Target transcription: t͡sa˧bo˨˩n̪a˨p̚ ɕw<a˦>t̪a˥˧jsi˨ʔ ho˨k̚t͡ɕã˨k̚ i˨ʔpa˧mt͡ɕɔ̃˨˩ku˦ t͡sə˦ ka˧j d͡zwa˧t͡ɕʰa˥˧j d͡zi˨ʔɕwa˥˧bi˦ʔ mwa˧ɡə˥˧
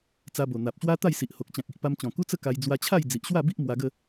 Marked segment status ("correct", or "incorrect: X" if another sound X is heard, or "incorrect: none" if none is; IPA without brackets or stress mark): correct